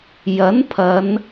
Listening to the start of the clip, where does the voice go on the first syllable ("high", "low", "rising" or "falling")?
rising